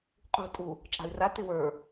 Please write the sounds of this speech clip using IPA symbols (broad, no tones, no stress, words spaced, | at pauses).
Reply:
qʼṳ tʼu | t͡ʃʼa̤y̯ra tɪwə˞